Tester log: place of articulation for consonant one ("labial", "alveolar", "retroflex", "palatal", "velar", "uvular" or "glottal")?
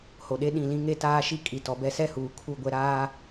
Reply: glottal